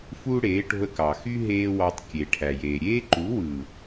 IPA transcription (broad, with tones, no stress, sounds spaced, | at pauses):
f uː˦ ɽ eː˨˦ ʈ o̤˧ ə̯ k ɑ˨ x y˦ ɦ eː˦ w ɑ˧ tˤ kʲ e˨ ʈʰ æ˨ j eː˨ ɾʲ eː˦ ǃ u˨˦ w ɯː˨